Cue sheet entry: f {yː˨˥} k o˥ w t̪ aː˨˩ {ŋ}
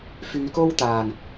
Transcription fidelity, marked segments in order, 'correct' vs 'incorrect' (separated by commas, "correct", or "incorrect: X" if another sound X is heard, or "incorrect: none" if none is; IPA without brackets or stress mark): incorrect: yː˧, correct